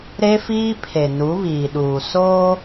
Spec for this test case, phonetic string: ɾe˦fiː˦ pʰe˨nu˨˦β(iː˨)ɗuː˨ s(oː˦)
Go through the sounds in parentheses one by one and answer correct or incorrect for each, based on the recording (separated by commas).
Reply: correct, correct